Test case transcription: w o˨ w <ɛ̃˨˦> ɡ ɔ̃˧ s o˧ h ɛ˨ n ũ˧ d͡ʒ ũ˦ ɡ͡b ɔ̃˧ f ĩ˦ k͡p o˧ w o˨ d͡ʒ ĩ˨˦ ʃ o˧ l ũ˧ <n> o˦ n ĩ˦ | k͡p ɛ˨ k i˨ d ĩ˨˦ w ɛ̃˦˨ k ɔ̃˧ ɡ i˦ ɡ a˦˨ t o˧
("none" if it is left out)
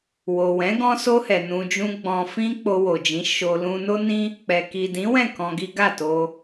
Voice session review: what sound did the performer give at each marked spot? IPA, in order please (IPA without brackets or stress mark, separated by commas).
ɛ̃˨˦, n